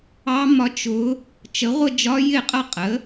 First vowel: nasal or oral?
oral